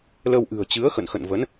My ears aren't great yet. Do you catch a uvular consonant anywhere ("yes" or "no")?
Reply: no